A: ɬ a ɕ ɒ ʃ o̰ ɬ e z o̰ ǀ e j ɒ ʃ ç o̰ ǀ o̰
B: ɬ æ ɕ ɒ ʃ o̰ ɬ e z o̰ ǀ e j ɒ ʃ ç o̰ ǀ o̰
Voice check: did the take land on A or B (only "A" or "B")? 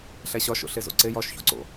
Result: B